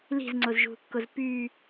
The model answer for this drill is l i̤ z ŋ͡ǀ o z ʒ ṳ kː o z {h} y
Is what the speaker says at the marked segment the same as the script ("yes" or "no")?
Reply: no